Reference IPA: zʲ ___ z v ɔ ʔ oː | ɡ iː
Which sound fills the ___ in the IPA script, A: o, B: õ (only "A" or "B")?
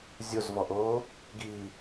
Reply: A